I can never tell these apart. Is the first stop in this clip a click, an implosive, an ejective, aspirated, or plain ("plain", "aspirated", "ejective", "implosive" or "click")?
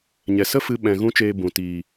implosive